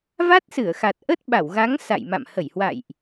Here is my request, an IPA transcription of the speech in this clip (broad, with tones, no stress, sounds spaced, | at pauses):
v a˦˥ t̚ s ɨ˧˩ ə̯ x a˨˩ t̚ ʔ ə˦˥ t̚ ɓ a˧˩ w ɣ a˨˦ ŋ s a̰˧˨ j m a̰˧˨ m h ə˧˩ j h w a̰˧˨ j ʔ